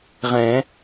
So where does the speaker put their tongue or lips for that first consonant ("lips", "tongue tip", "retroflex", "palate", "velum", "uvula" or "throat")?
uvula